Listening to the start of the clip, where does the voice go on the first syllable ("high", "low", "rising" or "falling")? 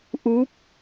rising